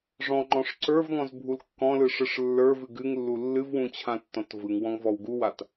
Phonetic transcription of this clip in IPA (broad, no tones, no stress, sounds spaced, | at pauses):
ʐ ɔ̃ ŋ͡ǃ ɔ̃ ʂ ǀ ə˞ v ŋ ɔ̃ z bʱ u l kː ɔ̃ l ɯ ʂ ɯ ʂ lː ə˞ v ɨ ɡ ɨ ŋ lː u lː ɨ v w ũ t͡ɕʰ ã tː ɔ̃ t v ɯ ŋ w ɔ̃ ŋ v ɔ w ɡ u w a t